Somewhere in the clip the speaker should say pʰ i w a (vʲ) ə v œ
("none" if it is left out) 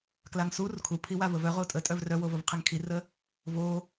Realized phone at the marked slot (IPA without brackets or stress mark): v